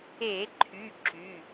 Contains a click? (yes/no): yes